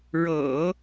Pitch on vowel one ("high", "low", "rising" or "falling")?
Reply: low